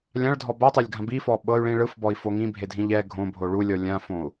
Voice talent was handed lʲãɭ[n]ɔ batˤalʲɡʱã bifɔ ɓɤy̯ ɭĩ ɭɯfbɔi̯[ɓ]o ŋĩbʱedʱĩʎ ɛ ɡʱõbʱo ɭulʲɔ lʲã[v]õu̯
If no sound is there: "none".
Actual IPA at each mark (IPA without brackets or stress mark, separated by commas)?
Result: dʱ, f, f